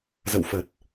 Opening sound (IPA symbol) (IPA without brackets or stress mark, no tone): z